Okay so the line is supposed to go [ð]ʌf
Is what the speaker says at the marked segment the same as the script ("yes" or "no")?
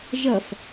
no